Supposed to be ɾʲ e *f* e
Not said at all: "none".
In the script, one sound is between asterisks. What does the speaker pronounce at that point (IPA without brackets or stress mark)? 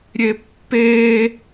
pː